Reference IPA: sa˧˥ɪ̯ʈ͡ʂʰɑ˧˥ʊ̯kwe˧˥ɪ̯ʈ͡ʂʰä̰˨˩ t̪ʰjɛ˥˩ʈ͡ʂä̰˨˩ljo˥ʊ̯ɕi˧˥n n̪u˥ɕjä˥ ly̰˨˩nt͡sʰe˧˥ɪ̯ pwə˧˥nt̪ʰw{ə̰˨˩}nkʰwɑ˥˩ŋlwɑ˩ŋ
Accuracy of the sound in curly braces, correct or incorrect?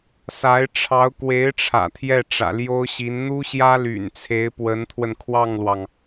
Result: incorrect